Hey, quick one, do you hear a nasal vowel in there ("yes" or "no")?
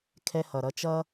no